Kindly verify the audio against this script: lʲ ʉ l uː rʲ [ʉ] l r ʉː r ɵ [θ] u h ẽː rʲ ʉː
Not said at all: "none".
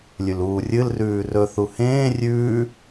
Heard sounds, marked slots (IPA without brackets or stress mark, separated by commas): ɨ, θ